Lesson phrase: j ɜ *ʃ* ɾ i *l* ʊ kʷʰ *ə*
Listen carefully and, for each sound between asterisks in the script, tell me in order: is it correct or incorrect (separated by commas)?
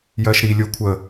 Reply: correct, incorrect, correct